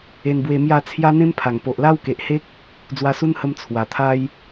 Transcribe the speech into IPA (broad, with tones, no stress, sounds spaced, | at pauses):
e˧ n b w e˧ m j a˥˧ t͡sʰ j a˦ n̪ ẽ˦ m pʰ a˨˩ ŋ p o˨ ʔ l a˦ w k e˨ ʔ h e˦ k̚ | d͡z w a˧ s u˦ n h ə˧ m t͡sʰ w a˨˩ t̪ʰ a˦ j